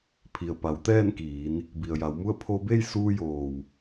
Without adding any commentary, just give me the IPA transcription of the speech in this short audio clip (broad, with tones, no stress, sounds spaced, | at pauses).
pʰ i˩ ə̯ p a˩˧ w t̪ ɛː˥˨ n k iː˩˧ n | b i˩ ə̯ j a˩˧ w m u˥˨ ə̯ pʰ o˧ b e˥˨ j s uː˧ j oː˩ w